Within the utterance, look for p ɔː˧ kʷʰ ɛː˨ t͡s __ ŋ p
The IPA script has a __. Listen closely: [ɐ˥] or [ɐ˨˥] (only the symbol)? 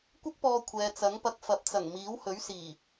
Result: ɐ˨˥